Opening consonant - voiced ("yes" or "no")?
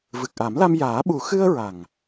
yes